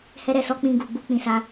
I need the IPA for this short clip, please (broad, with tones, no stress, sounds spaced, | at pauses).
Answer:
h ɛ˧ ɾ ɛ˨ s ɔ˧ k͡p ĩ˧ ɡ u˨ ɡ͡b u˧ k͡p ĩ˨ s a˧